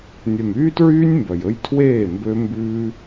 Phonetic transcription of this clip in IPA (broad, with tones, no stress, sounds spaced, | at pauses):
nʲ œ˨ m yː˦ t ɹ yː˦ nʲ m b œ˨ j ɵ˦ j tʰ w eː˦˨ m b ø˦ m b ʉː˦